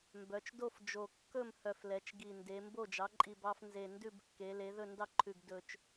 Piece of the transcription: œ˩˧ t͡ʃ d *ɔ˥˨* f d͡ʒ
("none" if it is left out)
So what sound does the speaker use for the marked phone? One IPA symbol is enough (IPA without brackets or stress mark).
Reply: o˥˨